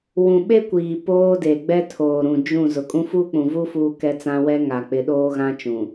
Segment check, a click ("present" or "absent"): absent